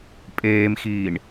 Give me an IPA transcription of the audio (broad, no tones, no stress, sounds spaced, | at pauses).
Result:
pʼ eː m x iː ɳ